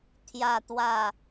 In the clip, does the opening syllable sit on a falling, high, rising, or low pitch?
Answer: low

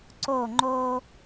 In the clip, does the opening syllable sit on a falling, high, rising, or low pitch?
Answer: falling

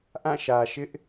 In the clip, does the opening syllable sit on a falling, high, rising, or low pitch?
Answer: falling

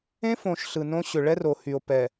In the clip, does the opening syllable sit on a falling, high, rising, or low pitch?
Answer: high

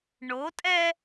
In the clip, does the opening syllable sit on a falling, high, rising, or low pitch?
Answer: rising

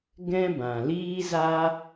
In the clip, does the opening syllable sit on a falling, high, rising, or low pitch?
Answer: high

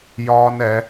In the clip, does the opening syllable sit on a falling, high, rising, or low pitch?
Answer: high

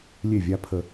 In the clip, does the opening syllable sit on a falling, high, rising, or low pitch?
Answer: falling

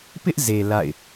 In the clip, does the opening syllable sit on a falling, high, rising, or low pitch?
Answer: high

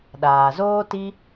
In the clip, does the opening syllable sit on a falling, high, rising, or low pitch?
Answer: low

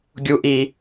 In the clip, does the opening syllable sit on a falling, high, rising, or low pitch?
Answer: low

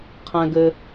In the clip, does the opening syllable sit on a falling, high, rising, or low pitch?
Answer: high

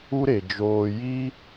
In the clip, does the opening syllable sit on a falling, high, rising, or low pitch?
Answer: high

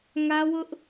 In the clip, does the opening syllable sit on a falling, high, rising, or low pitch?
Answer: high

